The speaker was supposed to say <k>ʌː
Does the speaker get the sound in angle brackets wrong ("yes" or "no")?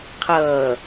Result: yes